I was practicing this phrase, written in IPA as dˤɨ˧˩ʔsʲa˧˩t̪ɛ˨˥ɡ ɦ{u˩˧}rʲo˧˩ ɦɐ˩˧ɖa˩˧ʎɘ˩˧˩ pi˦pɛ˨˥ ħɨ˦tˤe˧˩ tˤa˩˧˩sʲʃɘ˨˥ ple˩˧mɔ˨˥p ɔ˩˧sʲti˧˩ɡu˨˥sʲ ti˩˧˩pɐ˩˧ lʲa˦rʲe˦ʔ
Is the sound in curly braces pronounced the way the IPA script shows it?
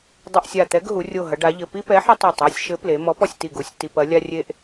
yes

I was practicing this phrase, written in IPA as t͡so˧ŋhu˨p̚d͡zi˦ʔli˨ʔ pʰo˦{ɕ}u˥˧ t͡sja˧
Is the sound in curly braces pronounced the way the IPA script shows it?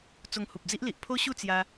yes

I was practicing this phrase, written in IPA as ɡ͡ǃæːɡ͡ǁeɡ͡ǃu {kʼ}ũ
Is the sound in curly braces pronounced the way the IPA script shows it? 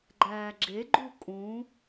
yes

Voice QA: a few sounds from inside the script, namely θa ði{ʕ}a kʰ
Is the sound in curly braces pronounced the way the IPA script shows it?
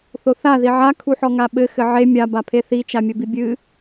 yes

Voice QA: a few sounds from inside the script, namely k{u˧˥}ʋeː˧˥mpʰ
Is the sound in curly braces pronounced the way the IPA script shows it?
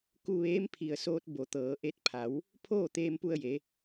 no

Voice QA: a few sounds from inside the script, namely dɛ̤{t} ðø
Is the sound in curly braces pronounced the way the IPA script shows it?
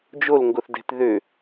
yes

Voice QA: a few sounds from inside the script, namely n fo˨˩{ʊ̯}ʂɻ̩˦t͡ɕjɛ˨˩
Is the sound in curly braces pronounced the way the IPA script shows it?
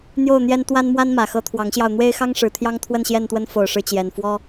yes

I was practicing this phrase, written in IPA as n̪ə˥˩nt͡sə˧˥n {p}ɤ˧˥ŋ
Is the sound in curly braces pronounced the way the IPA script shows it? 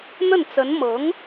no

